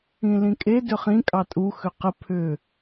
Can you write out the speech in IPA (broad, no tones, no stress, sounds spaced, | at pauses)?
ĩ l ĩ kʼ e d ʏ χ ĩ kʼ ɑ tʼ u x ʏ q ə pʰ ʏ